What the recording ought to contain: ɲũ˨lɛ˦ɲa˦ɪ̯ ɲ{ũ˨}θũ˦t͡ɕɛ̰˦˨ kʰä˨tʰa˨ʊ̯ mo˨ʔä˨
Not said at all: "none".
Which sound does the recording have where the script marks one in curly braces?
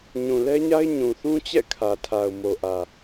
ũ˨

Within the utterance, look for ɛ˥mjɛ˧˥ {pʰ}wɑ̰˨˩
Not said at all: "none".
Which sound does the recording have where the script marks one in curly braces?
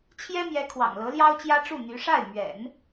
kʰ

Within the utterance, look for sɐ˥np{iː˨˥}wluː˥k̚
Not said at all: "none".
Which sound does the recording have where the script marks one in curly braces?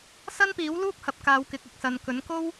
iː˨˥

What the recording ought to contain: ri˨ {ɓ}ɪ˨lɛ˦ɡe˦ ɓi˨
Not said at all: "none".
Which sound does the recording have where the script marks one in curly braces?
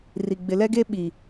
ɡ͡b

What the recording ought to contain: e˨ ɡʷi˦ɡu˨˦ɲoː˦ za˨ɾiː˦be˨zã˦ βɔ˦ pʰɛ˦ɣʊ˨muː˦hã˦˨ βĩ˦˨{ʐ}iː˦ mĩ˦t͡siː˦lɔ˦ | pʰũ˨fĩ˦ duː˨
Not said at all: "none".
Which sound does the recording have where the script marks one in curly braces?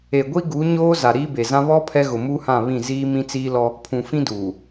z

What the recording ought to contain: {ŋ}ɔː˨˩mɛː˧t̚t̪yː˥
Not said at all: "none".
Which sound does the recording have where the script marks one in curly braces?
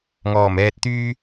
ŋ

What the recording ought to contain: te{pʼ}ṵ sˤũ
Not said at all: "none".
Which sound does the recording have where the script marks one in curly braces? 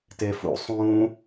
f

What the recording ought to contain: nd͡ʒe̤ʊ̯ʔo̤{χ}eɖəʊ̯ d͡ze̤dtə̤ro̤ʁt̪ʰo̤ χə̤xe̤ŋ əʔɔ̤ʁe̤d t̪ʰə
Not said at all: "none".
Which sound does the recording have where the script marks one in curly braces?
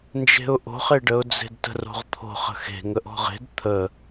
χ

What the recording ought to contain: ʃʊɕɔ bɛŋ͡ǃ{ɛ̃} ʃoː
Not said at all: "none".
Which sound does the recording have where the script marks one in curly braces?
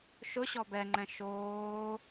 ɛ̃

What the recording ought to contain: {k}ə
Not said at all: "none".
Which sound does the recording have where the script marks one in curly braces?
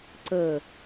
ǀ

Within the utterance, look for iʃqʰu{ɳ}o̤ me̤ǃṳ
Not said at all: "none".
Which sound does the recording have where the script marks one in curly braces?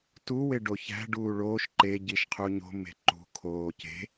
ɲ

